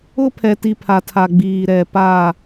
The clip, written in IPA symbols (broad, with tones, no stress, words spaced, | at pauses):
ʊ˦pʰɛ˨ti˨ pʰa˨tʰa˨ ɡ͡biː˨ɾɛ˨pa˦˨